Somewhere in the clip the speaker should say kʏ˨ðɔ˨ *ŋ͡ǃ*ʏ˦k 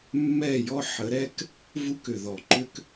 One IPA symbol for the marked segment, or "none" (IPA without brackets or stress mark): ǃ